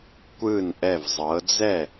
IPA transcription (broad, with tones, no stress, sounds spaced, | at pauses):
kʷ ɯ˥˩ n ʔ ɛ˧˩ v zˤ ɤ˩˧ d͡z ɛ˥˩